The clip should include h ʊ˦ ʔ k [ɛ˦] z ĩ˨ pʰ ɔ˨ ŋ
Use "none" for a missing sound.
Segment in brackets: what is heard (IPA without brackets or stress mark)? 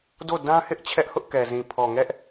ɛ˨